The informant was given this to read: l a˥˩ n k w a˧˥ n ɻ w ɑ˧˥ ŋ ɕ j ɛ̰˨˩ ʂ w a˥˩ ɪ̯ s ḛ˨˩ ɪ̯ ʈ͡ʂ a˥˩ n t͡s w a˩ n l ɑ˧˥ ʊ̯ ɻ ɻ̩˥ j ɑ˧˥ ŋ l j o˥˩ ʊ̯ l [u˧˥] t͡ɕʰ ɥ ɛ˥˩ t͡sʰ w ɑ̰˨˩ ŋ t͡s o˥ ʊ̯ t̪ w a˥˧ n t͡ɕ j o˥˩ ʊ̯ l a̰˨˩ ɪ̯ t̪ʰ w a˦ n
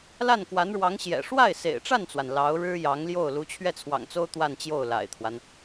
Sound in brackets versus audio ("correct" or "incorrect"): correct